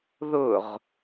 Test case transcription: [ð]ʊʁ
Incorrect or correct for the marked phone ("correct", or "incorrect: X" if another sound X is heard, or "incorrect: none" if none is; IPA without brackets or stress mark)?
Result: correct